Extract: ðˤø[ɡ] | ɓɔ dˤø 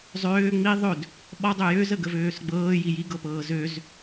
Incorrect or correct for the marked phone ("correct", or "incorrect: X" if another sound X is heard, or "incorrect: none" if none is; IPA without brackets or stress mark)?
incorrect: d